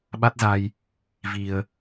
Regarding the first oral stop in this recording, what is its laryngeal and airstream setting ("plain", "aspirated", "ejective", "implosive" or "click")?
implosive